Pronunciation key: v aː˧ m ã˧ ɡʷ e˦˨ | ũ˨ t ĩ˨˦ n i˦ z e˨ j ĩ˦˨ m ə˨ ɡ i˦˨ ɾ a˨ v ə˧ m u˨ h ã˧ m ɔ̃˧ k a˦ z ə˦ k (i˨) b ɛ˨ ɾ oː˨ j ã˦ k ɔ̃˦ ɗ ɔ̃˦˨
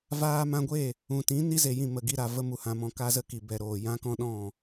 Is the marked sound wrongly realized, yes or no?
no